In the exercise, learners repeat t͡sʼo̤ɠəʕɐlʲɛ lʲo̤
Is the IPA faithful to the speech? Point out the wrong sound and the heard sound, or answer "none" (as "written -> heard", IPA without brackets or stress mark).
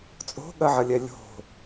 ə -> ɐ